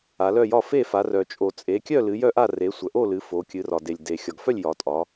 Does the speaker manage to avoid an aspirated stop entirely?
yes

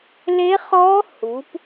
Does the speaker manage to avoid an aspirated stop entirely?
yes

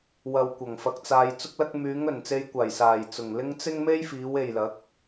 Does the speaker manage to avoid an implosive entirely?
yes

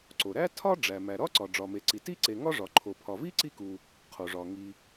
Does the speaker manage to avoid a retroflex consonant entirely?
no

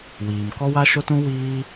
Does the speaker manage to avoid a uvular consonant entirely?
yes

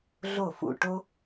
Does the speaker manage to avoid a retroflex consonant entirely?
no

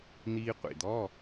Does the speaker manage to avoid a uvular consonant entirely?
no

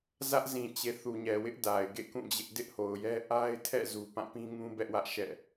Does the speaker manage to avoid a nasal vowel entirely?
no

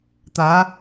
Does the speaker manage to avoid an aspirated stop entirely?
yes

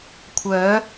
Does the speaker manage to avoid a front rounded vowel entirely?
no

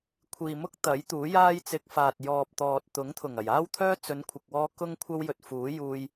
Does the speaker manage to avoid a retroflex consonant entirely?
yes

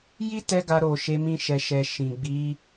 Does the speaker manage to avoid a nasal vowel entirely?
no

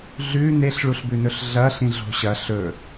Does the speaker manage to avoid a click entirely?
yes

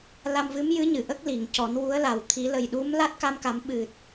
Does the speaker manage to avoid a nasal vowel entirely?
yes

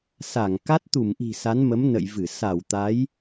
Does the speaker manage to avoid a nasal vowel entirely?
yes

